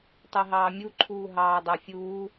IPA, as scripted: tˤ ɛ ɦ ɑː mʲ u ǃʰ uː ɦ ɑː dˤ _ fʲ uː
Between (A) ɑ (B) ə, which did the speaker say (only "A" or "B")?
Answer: A